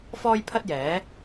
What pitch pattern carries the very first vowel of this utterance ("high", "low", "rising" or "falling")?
high